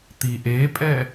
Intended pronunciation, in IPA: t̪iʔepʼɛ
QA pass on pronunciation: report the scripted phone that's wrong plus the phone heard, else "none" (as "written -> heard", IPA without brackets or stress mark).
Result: none